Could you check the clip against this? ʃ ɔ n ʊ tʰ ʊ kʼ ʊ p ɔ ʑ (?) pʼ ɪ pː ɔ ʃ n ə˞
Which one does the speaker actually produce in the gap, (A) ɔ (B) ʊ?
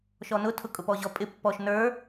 A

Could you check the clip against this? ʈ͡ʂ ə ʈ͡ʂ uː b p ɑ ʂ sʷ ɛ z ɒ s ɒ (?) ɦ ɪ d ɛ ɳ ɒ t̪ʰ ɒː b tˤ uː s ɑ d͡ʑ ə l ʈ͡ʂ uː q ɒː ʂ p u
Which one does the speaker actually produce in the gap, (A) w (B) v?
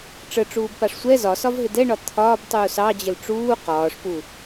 B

